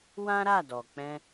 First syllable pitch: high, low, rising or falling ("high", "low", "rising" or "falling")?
high